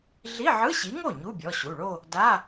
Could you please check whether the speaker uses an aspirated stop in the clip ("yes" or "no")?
no